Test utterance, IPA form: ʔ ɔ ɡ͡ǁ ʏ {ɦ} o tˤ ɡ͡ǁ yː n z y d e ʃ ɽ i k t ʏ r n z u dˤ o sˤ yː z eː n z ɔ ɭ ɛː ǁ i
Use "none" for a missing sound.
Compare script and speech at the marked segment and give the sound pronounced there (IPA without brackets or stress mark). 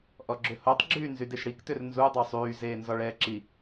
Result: h